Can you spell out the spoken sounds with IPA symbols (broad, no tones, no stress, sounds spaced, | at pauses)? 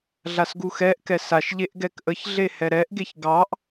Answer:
ɮ a s ɡ u x ɛ ʔ k ɛ s a ʃ ʎ e ʔ ɡ ɛ k ʔ ə ç ɮ e h ɛ ɾ ɛ ʔ ɡ e ç ɡ ɑ ʔ